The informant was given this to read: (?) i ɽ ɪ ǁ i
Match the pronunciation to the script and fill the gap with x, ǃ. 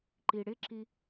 ǃ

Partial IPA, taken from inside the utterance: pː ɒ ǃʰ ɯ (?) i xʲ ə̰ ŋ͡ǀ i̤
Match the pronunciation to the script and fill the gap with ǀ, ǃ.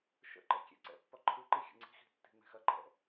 ǃ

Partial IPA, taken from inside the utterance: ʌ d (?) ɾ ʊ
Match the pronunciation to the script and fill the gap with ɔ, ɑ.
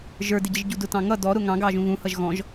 ɔ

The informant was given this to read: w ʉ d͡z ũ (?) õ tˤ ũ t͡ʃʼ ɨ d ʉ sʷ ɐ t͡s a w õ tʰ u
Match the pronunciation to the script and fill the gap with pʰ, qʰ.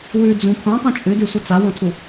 pʰ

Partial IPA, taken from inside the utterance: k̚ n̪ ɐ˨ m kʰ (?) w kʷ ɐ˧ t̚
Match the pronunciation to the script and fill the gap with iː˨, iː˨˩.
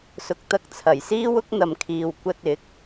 iː˨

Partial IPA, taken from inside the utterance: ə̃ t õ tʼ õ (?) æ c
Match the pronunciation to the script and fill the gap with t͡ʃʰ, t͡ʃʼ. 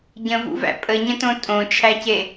t͡ʃʰ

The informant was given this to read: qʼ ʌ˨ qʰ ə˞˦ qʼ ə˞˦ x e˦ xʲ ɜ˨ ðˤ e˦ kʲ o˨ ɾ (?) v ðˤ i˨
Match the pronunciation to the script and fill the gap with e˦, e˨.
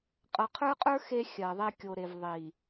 e˨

